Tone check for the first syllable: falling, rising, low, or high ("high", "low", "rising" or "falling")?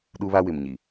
high